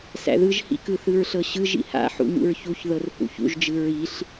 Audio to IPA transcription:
s æ̰ ð ɯ ʒ h ḭ k ɯ θ ɯ ɹ ɬ ɤ ɕ ɯ ʒ ḭ h a̰ ħ ṵ ɲ ṵ ɹ ç u ç ð ɤ r h ṵ ç ṵ ʒ d͡ʒ ɯ ɹ i ɬ

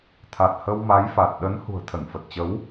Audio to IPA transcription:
t̪ʰ a˨˩ t̚ h ə˧ w m a˨˦ j f a˨˩ t̚ ɗ ə˨˦ n h ṳ˨˩ ə̯ t̪ʰ ə˧˩ n f ə˨˩ t̚ t͡ɕ ə˨˦ w

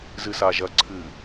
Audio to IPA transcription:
z ɨ s a ʒ ɐ ǀʰ ɨ

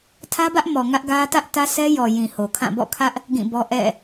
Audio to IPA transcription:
tʰ ä˦ b ä˦ ʔ m ɔ˨ ŋ ä˦ ʔ ɡ ä˦ t ä˦ ʔ t ä˦ sʰ ɛ˦ j ɔ˨ j ĩ˨ h o˨ kʰ ã˦˨ b ɔ̰˦˨ kʰ ä˦ ʔ | ɡ ĩ˦˨ b ɔ˦ ʔ ɛ̰˦˨

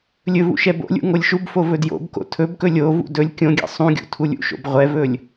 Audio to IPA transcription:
lʲ ɵ v ṵ ʃ ɛ b o̰ lʲ ṵ ŋ o lʲ ʃ u b f o v ɵ d j o̰ b k o̰ tʰ ɵ b k ɵ lʲ o v ṵ d ɵ lʲ kʲ õ ɡʲ ɛ̰ sˤ ũ ɡʲ ṵ tʰ u lʲ ṵ ʃ o̰ b ʁʷ ɛ v ɵ lʲ

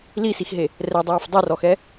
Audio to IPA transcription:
l i s i x ɦ e | r ɛ dˤ ɤː f dˤ u r ɔ x ɛ

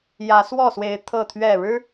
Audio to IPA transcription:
j ä˨˦ s w ɔ˥˨ s w e˨˦ ɪ̯ t̪ʰ ɤ˥˨ t̪ʰ ɥ ɛ˥˨ ɻ ɻ̩˦

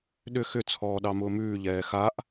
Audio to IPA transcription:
ɗ ʏ x ʏ t͡sʰ ɔː ɗ ɑ m ʊː m ʉː ʎ ɛː x a ʔ

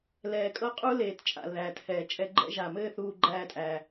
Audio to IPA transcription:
l ɛː˧ kʼ ɤ˦ qʼ u˦ l eː˧ t t͡ʃʼ a̰˨ l ð æː˨ t h ɛː˨ t͡ʃʼ ɛ˧ ɡ͡ǃ ɛ̰˦ ʒ a˨ m ɘː˦ θ uː˧ ɡ͡ǃ æː˧ tʼ æː˨

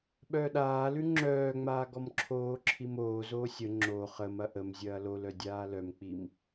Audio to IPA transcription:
ɓ œː ɗ aː l ʉ ŋ͡ǁ œː ŋ͡m aː ɡ ɔ m ǁʰ oː ǁʰ i m oː z oː sʲ ə ŋ͡ǁ o χ ə m ɐ ʔ ə m zʲ ɐː l o l œ dʲ aː l œ m k͡p i m

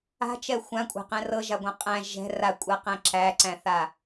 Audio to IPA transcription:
a̤ t͡ʃ ɛ xʷ ã kʷʼ a̤ q ɛ̃ r ɤ ʒ a ɡʷ ã qʼ æ̃ ʒ ɛ̤ r a kʷʼ a q æ̃ ǁ æ ǀ æ̃ θ a

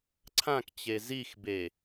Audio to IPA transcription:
ǀʰ ã k t͡ɕ e z i x b e

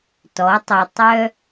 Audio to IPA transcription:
t ɔ˩˥ tˤ ø˨ tˤ œ˥

